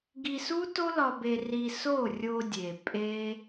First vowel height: high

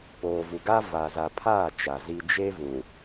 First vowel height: mid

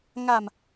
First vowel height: low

